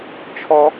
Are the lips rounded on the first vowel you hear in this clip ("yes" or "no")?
yes